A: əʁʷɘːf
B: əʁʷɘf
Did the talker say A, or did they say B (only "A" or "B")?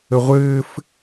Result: A